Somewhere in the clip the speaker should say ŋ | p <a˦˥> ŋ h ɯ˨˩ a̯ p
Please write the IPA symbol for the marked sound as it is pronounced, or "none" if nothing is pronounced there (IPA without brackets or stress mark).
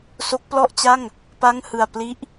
a˥˩